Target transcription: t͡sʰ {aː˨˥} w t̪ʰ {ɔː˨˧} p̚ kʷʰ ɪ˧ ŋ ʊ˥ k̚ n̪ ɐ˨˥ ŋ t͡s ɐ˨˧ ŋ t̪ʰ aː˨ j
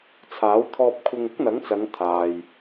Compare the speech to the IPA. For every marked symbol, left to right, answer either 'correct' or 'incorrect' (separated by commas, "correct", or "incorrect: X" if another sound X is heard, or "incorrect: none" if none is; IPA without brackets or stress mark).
correct, incorrect: ɔː˧